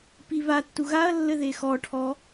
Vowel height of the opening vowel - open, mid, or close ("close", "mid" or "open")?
close